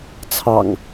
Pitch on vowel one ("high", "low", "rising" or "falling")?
low